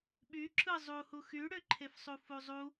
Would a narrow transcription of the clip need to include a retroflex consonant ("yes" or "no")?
yes